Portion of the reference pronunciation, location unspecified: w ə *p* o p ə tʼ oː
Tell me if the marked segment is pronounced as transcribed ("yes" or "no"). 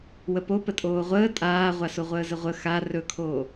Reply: yes